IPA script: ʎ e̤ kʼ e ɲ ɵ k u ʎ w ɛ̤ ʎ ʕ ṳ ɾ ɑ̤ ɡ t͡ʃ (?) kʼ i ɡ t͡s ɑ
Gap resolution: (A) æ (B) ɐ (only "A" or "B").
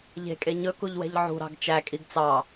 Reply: A